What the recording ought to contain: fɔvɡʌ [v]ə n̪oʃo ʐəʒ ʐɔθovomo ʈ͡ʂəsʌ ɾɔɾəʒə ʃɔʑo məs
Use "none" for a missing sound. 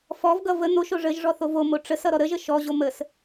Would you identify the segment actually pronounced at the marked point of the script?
v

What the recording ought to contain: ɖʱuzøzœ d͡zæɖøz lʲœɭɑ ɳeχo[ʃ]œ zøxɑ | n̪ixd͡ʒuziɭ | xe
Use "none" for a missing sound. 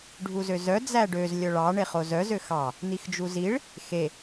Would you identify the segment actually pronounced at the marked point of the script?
z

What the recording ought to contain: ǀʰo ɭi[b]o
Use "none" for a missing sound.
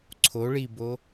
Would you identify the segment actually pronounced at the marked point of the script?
b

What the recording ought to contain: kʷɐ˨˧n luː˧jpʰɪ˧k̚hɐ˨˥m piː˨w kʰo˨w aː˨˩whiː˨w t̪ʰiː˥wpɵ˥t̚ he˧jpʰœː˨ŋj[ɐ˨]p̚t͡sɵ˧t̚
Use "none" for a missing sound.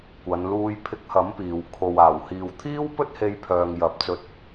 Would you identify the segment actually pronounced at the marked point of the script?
ɐ˨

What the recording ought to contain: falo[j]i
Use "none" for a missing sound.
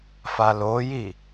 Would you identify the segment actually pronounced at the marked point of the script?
j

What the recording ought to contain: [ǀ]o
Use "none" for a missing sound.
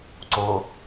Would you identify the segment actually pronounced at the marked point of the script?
ǀ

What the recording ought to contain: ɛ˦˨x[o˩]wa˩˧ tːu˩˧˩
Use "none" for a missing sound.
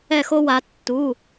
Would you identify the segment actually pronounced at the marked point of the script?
o˦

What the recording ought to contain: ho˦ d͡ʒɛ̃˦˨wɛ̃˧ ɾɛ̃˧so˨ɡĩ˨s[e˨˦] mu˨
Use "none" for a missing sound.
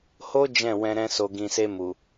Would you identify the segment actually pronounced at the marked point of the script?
e˧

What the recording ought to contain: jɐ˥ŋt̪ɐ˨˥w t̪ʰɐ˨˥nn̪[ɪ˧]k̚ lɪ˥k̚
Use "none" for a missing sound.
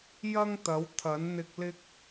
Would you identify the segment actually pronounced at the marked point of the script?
ɪ˧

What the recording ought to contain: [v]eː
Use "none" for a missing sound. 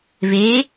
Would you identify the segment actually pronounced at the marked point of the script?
v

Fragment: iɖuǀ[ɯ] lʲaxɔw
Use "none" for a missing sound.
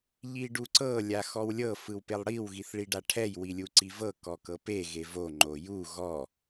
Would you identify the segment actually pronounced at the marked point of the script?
ɤ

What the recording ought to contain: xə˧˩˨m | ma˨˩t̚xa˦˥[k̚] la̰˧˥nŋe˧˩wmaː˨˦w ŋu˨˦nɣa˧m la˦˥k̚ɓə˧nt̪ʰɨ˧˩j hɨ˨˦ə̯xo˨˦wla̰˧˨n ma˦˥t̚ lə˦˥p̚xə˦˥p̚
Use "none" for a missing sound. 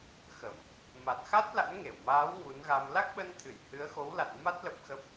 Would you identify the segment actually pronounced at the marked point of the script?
t̚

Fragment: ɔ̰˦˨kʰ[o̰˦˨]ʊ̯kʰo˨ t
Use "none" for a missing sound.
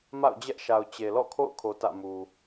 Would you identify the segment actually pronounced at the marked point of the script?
o̰˦˨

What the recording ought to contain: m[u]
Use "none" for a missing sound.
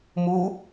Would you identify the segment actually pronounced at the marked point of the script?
u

